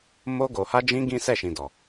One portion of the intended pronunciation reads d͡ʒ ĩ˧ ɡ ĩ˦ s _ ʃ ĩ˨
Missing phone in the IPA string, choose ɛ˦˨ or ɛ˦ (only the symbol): ɛ˦˨